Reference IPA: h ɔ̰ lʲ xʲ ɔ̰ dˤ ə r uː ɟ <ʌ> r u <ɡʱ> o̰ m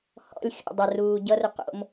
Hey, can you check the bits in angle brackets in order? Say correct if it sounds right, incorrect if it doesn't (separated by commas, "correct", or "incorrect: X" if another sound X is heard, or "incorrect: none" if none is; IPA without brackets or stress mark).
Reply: correct, incorrect: q